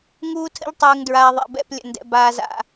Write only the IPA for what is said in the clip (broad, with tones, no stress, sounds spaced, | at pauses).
ŋ uː˦ tʰ ə̰˦ ʎ tˤ ʉː˨ ŋ d ɹ aː˨ ðˤ ḛ˨ b ɛ̰˦˨ p lʲ ə̰˨ n d ɛ̰˨ b aː˨ z a̰˨